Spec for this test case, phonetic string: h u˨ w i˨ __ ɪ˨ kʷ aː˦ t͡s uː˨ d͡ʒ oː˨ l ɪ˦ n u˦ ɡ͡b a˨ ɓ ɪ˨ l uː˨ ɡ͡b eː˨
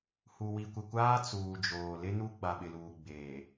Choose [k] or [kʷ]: kʷ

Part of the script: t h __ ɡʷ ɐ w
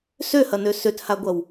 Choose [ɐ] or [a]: a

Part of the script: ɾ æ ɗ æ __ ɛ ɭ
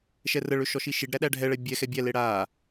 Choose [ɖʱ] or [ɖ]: ɖʱ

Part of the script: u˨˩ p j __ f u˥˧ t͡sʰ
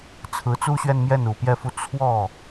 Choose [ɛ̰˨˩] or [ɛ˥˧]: ɛ˥˧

